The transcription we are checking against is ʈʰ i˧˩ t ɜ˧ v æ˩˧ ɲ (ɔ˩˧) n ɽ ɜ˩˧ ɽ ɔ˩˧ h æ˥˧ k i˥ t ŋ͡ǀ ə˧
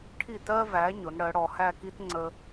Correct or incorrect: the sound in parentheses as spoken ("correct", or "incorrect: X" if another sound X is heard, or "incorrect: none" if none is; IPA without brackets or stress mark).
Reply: incorrect: ʊ˩˧